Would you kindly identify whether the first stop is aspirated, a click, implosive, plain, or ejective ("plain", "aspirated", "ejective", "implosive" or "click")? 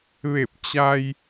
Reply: plain